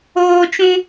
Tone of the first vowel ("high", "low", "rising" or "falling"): high